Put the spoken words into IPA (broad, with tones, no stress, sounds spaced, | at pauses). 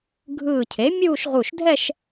ɡʱ ɯː˧˩ cʰ e˩˥ mʲ uː˥˧ ʃ ʁ u˧˩ ʃ dʱ ɛ˥˧ ʃ